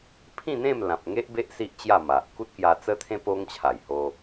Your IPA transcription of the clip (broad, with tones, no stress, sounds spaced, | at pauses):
pʰ ĩ˥˧ n̪ ẽ˥˧ m l ã˨ p̚ ŋ e˦ ʔ b e˦ ʔ s i˦ ʔ t͡ɕ j a˥˧ m a˨ ʔ k u˦ t̚ k j a˧ t͡s ə˦ t̪ʰ ẽ˦ p o˧ ŋ t͡ɕʰ a˨˩ j h o˧